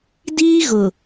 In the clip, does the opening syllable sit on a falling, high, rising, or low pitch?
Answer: high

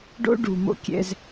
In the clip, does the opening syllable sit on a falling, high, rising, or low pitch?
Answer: high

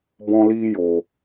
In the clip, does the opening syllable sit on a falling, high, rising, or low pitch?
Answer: high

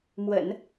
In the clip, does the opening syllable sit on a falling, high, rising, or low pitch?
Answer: low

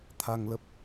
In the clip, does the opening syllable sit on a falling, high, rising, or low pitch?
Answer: low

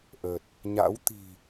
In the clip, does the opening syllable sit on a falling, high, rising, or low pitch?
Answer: low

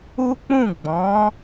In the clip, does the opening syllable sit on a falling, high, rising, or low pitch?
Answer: high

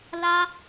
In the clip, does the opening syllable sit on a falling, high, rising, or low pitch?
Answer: high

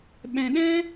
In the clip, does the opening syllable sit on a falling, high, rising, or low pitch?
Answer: low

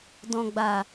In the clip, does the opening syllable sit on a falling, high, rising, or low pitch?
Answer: low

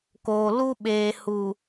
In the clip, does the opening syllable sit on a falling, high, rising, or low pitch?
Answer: low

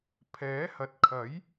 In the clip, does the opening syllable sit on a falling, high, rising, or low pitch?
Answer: rising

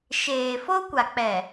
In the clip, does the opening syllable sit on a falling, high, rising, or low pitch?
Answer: low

